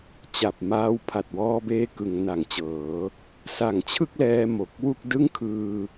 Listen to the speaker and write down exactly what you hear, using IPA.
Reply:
t͡ɕa˨˩p̚maː˧w pʰa˨˩t̚wɔː˧beː˧ kɯ˩˦ŋna˩˦ŋt͡ɕɤː˩˦ | sa˨˩ŋt͡ɕʰɯ˥˩k̚lɛː˧ mo˨˩k̚wu˥˩k̚ dɯ˥˩ŋkʰɯː˧

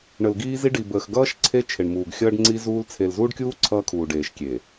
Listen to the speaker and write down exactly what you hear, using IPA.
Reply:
ɳə˨lɡiː˦zi˦ ɖi˨bəː˨xɡʌː˦ʃ ǀʰe˦t͡ʃʰe˨ɳmuː˨ɡ xʲʌː˦ɖŋ͡ǀi˦zuː˦l t͡sʰe˨lzuː˦ɖkʲuː˦ ǀʰʌː˦kʰuː˨ɖeː˨ʃkʲe˨

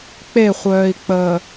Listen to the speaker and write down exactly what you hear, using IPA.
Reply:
k͡peχʷœːi̯k͡pəː

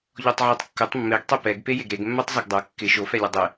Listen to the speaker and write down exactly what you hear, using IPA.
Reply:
ʎɔtˤʕatˤkːʊtˤ mːeɡtˤi pɛɡ pejeɡɾeɡ mːatˤzeɡdˤo kːɪ ʃofɛlʲʊ dˤɪ

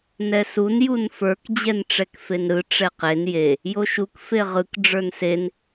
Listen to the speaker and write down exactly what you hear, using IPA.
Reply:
nɛsun junfə˞k d͡ʑɛnʈ͡ʂɛkfenɾɯ ʈ͡ʂɛqen je | joʃuk feʁɯk ɖ͡ʐə˞nsen

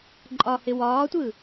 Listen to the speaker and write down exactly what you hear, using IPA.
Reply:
ǃʼɒhɪ wɒːtʷɯ

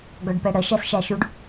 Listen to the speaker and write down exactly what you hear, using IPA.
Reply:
ɡɔɖpɛɽə ʃæsʃæʃuɖ

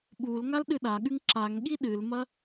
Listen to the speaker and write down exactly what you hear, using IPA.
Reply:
ɓulŋal ɗɨɗaɠʉŋ ǁaŋɠi ɗɨlmɐ

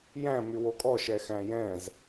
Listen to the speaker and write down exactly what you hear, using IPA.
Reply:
jæ̃ mywokʼɔ ʃɛxæ̃jɛ̃z

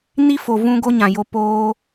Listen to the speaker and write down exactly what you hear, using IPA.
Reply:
ni˦ fo˨vũ˧ ɡo˦ɲã˨jo˧ poː˦

